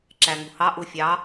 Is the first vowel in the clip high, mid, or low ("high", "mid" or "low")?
low